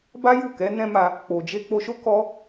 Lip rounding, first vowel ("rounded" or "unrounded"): unrounded